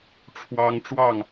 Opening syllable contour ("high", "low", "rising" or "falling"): high